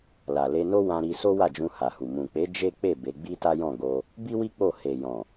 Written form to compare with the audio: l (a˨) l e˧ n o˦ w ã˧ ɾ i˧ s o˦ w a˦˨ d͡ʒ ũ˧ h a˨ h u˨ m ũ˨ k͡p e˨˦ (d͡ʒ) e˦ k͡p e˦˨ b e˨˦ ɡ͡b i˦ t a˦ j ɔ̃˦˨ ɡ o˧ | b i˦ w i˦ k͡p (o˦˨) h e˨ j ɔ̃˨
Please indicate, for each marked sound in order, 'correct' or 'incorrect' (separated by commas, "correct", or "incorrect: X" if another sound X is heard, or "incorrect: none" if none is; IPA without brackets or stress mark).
correct, correct, correct